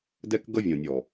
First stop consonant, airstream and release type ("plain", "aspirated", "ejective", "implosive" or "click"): plain